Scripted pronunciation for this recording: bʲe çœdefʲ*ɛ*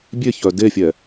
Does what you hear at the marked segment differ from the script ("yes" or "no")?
no